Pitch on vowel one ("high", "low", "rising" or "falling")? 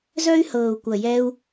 high